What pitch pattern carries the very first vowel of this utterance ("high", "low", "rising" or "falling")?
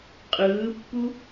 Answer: rising